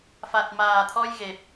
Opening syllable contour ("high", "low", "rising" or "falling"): low